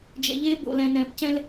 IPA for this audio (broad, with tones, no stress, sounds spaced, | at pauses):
d͡ʒ ɛ̰˨ ʎ eː˦ b o̰˨ l ɛ̃˨ n ɛ̃ː˨ p c ɛ̃˦ l